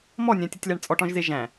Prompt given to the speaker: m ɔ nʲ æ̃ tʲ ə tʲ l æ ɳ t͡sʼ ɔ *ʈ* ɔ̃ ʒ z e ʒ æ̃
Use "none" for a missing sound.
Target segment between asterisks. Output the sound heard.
ʈ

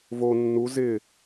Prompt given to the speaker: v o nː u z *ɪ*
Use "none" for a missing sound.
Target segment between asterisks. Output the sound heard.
ɪ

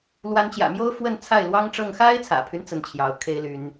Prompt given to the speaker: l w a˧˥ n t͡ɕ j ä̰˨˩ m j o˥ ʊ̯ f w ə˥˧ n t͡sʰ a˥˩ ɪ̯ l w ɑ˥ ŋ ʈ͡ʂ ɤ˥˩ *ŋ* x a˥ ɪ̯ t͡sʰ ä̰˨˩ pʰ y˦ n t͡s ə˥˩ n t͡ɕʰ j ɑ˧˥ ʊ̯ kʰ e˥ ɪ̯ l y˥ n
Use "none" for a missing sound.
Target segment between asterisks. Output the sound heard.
ŋ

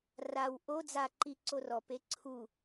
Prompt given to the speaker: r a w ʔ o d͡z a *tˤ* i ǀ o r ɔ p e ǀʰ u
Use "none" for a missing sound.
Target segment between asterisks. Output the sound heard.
ǃ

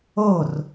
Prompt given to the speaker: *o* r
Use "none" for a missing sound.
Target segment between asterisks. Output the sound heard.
o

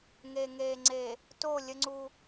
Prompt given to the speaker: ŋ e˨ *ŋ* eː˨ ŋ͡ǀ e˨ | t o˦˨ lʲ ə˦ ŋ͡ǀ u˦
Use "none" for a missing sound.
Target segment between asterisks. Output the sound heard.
ŋ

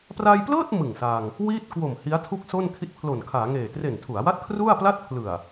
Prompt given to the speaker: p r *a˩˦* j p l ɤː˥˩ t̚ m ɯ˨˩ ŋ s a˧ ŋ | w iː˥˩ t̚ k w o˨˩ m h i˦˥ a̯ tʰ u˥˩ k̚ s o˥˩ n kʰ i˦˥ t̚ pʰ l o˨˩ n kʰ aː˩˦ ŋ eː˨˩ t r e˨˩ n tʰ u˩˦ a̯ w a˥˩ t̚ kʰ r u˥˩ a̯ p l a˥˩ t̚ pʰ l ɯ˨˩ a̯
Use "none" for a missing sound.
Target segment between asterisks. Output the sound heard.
a˧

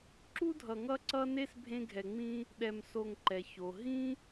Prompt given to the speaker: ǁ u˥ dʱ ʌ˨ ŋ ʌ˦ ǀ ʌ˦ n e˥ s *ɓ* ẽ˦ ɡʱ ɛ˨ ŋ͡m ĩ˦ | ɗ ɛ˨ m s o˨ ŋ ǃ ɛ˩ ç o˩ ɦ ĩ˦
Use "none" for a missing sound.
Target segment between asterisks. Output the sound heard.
bʱ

